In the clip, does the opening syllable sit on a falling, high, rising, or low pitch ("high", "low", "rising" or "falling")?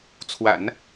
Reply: low